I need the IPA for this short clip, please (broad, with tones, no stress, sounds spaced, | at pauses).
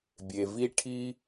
bʲ e˨ v i˦ ʈʰ i˦